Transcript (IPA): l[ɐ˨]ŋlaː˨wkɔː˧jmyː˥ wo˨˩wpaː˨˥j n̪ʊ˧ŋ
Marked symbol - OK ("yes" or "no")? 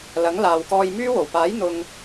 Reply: no